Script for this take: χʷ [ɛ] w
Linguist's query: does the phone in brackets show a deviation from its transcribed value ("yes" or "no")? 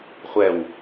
no